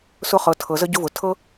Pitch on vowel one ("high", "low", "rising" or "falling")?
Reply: high